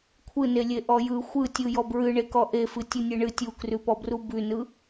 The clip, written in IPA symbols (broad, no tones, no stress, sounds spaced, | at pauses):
kʷʰ ɯ n e lʲ e ʔ ɔ j ɯ xʷ ɯ tʲ ɯ j ɔ b ɹ ɨ ɳ e k ɔ ʔ e f ɨ tʲ u nʲ e ɳ ɨ tʲ u k r ʉ p ɔ b r u b ʉ n ɯ